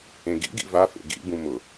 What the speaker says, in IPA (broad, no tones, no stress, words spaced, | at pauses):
ẽɡḭɡḭ vafḛ ɡḭbũ mʊ